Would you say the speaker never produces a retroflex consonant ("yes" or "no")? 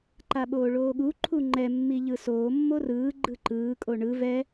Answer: no